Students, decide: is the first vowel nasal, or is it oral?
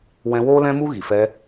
nasal